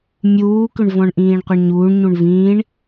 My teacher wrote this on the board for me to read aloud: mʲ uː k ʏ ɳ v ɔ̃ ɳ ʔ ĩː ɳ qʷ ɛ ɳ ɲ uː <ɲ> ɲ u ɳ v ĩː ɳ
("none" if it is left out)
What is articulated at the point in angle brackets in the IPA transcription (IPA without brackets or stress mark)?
ɳ